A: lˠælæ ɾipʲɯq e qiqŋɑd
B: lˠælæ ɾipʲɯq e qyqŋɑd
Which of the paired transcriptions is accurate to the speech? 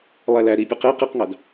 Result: A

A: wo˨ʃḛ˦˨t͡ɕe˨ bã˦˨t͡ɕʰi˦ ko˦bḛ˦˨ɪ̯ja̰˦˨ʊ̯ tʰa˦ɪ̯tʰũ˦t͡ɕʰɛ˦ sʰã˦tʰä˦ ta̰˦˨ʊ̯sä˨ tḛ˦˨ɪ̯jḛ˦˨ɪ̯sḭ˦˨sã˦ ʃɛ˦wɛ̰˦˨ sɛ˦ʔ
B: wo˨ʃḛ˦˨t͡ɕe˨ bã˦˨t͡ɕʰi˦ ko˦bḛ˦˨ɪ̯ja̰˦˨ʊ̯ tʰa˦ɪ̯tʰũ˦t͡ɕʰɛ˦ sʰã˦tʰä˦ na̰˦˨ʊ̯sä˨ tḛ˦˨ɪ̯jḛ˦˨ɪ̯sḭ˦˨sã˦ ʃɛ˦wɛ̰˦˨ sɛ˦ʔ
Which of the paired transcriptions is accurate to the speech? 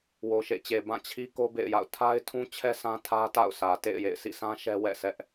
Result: A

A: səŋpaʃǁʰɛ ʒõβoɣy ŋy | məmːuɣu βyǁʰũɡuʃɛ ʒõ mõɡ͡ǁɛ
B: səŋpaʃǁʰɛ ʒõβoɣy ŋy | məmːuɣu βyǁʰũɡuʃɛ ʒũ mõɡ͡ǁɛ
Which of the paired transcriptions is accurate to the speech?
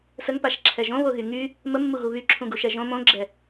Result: A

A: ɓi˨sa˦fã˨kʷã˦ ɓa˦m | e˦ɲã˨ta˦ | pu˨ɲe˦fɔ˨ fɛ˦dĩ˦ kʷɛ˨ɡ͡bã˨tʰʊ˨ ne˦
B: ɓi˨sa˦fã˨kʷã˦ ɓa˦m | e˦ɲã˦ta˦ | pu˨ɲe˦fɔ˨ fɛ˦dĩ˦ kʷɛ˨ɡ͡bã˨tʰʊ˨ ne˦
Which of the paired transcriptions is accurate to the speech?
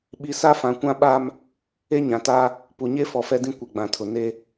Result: A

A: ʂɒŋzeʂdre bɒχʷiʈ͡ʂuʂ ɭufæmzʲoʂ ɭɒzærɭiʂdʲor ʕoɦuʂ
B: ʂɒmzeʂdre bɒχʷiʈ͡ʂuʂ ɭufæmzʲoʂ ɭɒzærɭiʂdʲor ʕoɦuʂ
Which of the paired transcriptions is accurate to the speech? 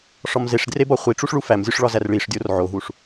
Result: B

